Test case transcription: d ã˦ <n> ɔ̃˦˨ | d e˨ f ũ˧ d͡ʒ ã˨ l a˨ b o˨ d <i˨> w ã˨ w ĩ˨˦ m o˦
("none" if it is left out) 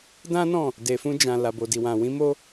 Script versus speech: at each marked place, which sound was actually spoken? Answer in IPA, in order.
n, i˨

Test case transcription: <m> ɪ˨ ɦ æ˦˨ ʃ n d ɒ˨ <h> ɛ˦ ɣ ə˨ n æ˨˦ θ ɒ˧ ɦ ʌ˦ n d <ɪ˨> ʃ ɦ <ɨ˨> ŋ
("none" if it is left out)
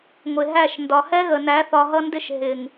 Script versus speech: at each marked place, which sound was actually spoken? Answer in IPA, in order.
ŋʷ, h, ɪ˦, ɪ˨

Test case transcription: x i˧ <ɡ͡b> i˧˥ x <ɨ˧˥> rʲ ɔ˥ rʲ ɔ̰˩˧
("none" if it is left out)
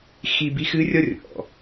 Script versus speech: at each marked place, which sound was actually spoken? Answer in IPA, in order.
b, ɨ˧˥

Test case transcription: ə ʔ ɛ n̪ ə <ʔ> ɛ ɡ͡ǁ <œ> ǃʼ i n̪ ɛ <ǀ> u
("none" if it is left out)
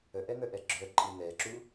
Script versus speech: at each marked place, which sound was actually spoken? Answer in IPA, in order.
ʔ, œ, ǁ

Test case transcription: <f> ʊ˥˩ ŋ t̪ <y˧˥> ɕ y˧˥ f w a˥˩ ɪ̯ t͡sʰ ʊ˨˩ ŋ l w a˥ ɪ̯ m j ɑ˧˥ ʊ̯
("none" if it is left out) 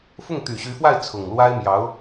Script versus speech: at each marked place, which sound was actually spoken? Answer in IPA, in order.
f, y˨˩

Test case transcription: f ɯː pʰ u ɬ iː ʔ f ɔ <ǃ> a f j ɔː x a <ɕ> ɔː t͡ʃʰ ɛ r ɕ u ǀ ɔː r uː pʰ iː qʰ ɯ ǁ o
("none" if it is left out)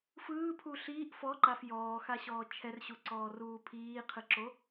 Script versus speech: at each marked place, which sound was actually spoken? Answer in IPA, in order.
ǃ, ɕ

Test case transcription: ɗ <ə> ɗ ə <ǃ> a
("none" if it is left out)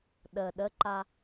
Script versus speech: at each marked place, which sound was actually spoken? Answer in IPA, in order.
ə, ǃ

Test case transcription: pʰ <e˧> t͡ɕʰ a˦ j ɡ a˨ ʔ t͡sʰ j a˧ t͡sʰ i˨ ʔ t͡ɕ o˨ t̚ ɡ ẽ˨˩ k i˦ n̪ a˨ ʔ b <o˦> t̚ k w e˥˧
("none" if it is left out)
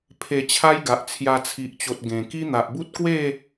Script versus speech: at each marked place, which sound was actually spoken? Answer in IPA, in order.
e˧, u˦

